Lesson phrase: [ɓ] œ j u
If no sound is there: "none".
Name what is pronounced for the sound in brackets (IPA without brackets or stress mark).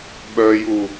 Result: ɓ